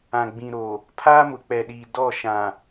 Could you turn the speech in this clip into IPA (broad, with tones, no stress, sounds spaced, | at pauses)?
ã˨ ɡ͡b ĩ˨ ɾ o˨ | pʰ aː˦ m ʊ˨ k͡p ɛ˨ ɗ iː˨ d ɔ˦˨ ʃ ã˨